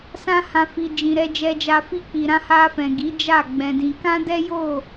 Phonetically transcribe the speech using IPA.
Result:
s ã˧ h ã˨ f i˨ d͡ʒ ĩ˨ ɾ ɛ˧ d͡ʒ ɛ˧ d͡ʒ a˧ f i˧ k͡p i˨ ɾ ã˧ h a˧ f ɛ̃˨ ɡ i˨˦ d͡ʒ a˦˨ ɡ͡b ɛ̃˧ d ĩ˧ k ã˦ d ɛ˦ j o˦˨

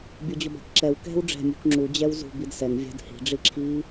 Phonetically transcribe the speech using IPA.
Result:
bʲ o d͡ʑ ʊ b a̤ k ǁ ɛ w k ɛ̤ w ɖ͡ʐ ɛ̤ mʲ ṳ k ŋ͡ǁ u d͡ʑ ɛ w z ṳ b i d s ɛ ŋ vʲ a̤ d h i̤ ɖ͡ʐ i ǁʰ i

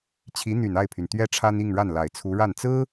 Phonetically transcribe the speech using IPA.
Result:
t͡ɕʰ i˧˥ n̪ y˨˩ n a˥˩ ɪ̯ pʰ y˩ n t̪ ɥ ɛ˥ ʈ͡ʂʰ a˥ n i˥˧ ŋ ɻ a˥˩ n l a˨˩ ɪ̯ t͡sʰ u˧˥ ɻ a˥˩ n t͡s ɹ̩˥

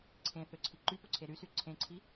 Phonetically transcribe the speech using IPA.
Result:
ǀʰ ẽ θ ø ǀʰ i ǃ y p o ǀʰ e ɾ y s y ǀʰ ẽ ǀʰ i

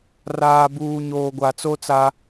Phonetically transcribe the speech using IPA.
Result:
r aː˨ b uː˨ ɲ oː˨ ɡʷ a˨ t͡s o˦ t͡s a˦

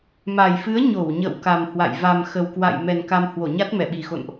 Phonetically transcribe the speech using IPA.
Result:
m a˨˩ j f ɨ˨˦ ə̯ ɲ o˧˩ w ɲ ə̰˧˨ w k a˨˩ m h w a̰˧˨ j v a˨˩ m x ə˨˩ w k w a̰˧˨ j m ɛ˨˩ n k a˧ m h w o˧˩ ɲ a˦˥ t̚ m ɛ˧˩ ɓ i˨˩ x o̰˧˨ n ʔ

